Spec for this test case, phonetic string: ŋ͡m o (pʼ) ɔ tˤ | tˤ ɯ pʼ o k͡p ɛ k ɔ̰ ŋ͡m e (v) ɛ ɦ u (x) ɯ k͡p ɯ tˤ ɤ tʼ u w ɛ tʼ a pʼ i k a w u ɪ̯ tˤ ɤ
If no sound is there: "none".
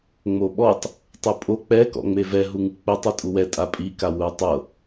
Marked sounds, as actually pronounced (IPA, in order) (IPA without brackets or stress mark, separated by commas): ɓ, v, ŋ